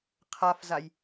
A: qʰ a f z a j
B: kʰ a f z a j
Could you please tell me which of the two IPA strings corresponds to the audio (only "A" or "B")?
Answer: A